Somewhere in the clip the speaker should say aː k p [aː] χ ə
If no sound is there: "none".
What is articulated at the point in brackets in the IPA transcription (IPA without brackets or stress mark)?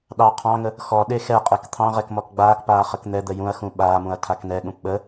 aː